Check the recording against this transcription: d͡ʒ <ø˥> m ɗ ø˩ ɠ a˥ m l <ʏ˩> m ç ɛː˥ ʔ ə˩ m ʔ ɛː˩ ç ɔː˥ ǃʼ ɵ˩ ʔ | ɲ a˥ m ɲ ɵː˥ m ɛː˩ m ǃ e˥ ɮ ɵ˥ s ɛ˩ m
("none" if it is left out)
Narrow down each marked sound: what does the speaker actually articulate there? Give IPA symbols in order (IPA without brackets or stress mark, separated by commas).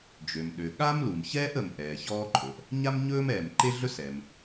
ø˩, u˩